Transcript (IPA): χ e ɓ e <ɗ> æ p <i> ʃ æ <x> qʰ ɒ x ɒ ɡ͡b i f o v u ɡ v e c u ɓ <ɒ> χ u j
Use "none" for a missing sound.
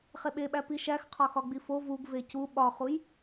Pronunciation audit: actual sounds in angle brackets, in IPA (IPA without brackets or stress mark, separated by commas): ɓ, i, x, ɒ